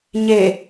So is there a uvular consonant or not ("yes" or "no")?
no